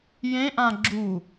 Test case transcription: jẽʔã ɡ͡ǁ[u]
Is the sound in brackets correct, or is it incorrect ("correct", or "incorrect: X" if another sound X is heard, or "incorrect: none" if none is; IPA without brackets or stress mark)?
correct